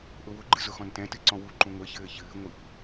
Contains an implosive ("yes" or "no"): no